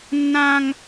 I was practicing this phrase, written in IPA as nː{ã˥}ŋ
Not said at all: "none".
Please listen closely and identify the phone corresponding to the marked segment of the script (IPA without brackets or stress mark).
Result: ã˥